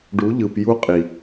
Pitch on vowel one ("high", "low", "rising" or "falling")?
rising